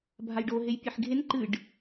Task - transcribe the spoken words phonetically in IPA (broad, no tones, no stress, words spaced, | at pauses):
bʱajɖo ɦejpʲeħɡʱen ǃɨɖ